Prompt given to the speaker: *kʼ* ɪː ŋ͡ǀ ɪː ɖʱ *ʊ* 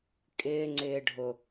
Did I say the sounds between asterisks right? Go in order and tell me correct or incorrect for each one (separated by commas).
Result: correct, correct